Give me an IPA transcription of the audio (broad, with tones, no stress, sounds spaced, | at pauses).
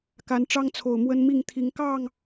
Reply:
k a˨˦ n ʈ͡ʂ ɑ˦ ŋ t͡sʰ o˨˩ ʊ̯ m w ə˦ n m i˥˨ ŋ t̪ʰ i˨˦ ŋ k ɑ˥˨ ŋ